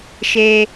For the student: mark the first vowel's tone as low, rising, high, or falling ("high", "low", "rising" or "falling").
high